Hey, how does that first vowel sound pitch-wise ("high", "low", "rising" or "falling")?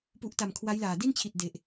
low